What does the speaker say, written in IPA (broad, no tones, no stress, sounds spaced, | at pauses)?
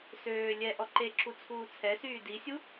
s øː lʲ ɛ ʔ ɔ ǃ e ǁ u t͡sʰ uː t͡sʰ ɛ s yː d i sʲ u